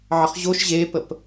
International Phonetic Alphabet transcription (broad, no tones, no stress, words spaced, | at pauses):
ʕəχʑoʃ ʑepəp